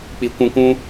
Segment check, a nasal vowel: present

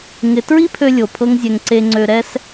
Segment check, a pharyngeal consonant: absent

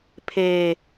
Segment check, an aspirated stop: present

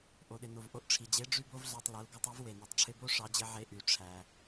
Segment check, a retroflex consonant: present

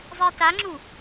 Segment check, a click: present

